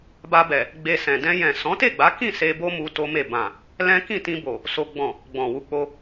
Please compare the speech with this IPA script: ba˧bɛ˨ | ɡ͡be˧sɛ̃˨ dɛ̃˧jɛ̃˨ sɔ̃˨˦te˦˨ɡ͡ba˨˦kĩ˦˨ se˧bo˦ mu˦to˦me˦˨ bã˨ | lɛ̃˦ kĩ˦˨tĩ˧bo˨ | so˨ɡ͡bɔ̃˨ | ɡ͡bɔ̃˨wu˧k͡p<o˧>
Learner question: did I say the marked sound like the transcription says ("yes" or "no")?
yes